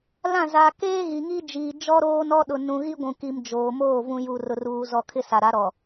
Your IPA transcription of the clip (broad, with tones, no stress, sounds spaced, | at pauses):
l ã˦˨ z a˨ k eː˦ ɣ i˨ ŋ i˦ d͡ʒ iː˨ d͡ʒ ɔ˦ ɾ oː˦ n ɔ˦ ɗ ʊ˨ n ũ˨ ɣ i˦ ɡʷ ũ˨ k i˨ m d͡ʒ oː˨ m oː˦˨ v ũ˦ j u˨ r ʊ˨ r uː˨ z ɔ˨ kʰ ɪ˦ s a˨ ɾ a˨˦ ɾ ɔ˨